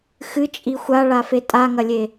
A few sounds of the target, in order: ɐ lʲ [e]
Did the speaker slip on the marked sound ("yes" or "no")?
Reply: no